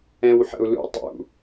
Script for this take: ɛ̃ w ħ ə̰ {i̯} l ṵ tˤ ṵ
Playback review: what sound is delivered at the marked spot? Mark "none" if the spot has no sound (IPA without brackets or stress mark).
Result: u̯